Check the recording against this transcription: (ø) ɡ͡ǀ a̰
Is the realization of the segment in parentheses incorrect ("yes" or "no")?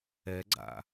yes